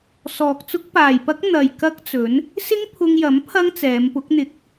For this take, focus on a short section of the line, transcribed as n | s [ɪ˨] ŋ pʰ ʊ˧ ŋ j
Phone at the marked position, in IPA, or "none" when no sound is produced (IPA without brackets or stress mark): ɪ˥